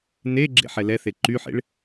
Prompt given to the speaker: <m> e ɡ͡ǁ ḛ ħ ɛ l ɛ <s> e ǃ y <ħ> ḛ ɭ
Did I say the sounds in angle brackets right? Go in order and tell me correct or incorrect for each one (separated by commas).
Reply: incorrect, incorrect, correct